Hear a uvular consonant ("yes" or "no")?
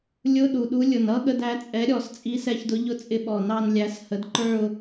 no